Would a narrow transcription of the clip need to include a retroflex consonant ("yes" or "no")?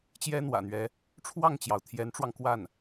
yes